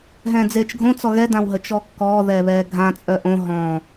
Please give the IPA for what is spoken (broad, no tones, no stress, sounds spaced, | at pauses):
ɦ ɛ̃ː d͡z eː t͡ʃ ɡʱ õ t͡s ɔ ɣ ɛ d ã w ɦ ə t͡ʃ ɔ kː ɔː ð ɛː β ɛː ɡʱ ã t͡sʼ œ ʔ õ ɦ ɔ̃